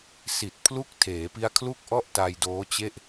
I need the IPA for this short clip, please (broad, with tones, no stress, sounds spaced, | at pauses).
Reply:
s i˨˩ t̚ pʰ l u˦˥ k̚ tʰ eː˩˦ p i˦˥ a̯ kʰ l u˥˩ k̚ ʔ ɔ˥˩ ʔ t a˧ j d oː˦˥ t͡ɕ e˥˩ ʔ